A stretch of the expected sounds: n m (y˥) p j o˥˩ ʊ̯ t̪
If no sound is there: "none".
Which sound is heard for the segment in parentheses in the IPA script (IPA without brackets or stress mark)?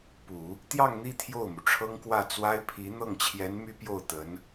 y˥